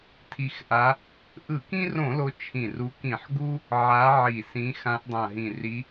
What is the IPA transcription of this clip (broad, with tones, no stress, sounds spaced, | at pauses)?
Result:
tʰ i˨˦ x ʔ a˨˦ | ʔ ɯ˧˩˧ k ĩ˦ r õ˧˩˧ l o˨˦ t͡ʃʰ ĩ˨˩ r u˨˦ k ĩ˧˩˧ ħ ɡ u˦ | ʕ a˨˦ ʕ i˨˩ s ĩ˨˦ x ã˨˦ ʔ dˤ ã˨˩ ɦ ĩ˨˩ r i˨˦